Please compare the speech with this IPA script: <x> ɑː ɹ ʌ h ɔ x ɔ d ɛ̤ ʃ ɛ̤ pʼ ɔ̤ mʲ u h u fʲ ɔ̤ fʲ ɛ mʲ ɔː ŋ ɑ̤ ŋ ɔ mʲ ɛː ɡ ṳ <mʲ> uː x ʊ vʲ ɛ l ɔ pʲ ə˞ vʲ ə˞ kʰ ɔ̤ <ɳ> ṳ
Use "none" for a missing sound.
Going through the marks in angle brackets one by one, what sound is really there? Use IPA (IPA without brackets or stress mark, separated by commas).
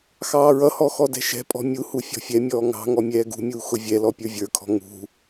x, mʲ, ŋ